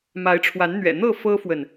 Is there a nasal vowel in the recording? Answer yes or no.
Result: no